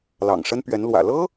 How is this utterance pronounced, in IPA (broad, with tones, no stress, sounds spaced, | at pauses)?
l ɑ̰˨˩ ŋ ʂ ə˥ n p ɥ ɛ˧˥ n l w ä̰˨˩ l ɤ˥